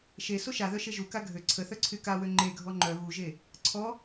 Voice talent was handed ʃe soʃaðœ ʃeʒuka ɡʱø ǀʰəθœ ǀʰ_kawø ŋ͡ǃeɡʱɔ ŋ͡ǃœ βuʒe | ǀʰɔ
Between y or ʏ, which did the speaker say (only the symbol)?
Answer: y